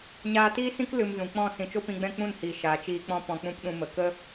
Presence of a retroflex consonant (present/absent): absent